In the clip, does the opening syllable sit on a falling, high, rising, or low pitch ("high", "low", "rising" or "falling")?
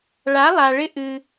rising